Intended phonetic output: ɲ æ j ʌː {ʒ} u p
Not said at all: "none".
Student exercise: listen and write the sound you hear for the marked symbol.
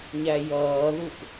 ð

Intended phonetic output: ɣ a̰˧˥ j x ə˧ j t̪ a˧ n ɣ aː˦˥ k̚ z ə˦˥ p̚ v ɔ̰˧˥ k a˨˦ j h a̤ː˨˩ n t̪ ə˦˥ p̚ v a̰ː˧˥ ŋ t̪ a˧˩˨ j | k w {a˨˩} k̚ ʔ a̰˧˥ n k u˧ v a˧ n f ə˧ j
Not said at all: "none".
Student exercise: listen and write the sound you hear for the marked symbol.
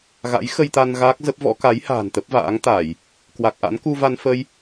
a˨˩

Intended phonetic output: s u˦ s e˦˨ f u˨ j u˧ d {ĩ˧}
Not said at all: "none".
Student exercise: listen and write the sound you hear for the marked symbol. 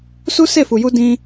ĩ˧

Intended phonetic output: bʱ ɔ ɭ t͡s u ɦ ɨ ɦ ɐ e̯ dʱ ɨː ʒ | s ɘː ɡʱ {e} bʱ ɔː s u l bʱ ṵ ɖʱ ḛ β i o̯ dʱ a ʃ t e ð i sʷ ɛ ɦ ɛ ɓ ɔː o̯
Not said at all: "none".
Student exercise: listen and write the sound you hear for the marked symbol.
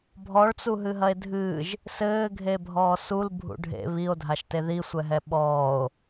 e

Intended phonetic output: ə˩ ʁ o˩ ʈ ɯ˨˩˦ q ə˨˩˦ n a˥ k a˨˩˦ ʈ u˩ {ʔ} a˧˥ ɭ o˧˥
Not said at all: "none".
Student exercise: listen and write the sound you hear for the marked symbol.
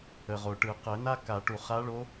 χ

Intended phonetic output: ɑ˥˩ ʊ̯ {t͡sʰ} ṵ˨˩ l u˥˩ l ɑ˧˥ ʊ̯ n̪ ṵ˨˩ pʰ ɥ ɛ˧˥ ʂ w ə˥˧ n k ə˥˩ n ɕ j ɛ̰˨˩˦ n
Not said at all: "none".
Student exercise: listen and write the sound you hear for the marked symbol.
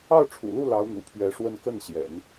ʈ͡ʂʰ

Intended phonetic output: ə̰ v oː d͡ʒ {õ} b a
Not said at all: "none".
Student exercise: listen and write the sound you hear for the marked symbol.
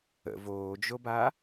o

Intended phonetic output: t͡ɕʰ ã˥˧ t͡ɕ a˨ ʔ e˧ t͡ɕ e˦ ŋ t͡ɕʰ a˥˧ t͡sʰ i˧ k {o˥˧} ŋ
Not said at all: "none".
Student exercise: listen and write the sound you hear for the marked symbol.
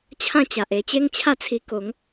o˨˦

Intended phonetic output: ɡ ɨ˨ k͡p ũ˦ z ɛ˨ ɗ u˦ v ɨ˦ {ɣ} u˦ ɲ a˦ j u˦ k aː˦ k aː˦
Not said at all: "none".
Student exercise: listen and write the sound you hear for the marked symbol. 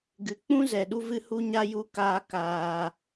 h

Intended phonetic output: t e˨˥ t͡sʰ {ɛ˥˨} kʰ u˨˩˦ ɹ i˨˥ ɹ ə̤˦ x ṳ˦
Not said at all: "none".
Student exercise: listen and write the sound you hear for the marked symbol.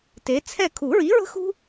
ɛ˥˨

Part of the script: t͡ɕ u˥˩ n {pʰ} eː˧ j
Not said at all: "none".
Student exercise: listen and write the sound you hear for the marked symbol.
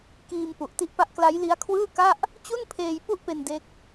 pʰ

